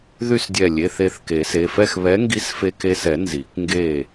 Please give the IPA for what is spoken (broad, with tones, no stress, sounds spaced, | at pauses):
ð y˥˨ s dʲ ɛ˧˩ lʲ e˩˧˩ θ e˧˩ θ k e˨˩˦ s e˩˧˩ f ɛ˥˨ x β ɛ˨˥ ŋ ɡ i˨˥ s f e˧ k e˧ s ɛ˨˩˦ n z i˨˩˦ k ŋ ɡ e˥˨